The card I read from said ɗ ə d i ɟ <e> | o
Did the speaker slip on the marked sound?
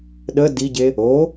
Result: no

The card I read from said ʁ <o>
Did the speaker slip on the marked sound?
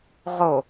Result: no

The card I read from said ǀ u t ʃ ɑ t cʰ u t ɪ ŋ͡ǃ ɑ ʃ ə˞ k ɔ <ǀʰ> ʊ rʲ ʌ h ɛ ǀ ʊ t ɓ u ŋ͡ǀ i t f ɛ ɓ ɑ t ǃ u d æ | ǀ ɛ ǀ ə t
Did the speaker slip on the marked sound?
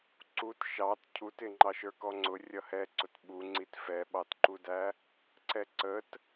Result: yes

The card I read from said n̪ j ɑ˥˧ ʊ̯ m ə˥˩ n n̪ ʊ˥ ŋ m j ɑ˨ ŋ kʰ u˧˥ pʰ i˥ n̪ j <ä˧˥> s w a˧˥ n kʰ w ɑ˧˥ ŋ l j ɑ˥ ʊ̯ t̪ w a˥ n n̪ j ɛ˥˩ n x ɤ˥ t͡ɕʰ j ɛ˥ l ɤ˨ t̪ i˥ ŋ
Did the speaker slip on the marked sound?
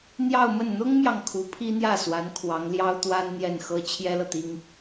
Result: yes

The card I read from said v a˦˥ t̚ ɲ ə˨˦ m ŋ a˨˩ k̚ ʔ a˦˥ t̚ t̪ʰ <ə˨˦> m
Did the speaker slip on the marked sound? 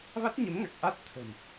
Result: yes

